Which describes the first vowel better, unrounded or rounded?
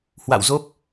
unrounded